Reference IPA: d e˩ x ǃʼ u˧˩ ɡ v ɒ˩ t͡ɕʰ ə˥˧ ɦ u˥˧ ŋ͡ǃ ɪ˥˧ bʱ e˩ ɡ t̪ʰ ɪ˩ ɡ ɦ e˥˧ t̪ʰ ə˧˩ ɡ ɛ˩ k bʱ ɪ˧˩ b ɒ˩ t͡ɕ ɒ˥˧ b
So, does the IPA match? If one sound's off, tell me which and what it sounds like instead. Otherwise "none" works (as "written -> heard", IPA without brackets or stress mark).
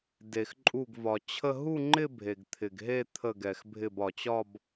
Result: k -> x